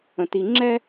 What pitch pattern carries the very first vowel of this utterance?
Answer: low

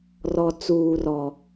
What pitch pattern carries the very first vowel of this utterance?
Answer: low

